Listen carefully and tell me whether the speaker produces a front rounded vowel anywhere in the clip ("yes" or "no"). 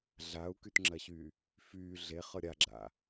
yes